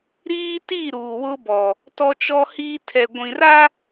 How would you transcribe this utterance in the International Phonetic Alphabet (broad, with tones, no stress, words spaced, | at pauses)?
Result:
ɾiː˦ti˦˨ ɾuː˨wʊ˦bɔ˨ | tɔ˦t͡ʃɔ˦hiː˦ tʰɛ˨ɡʷĩ˨ra˦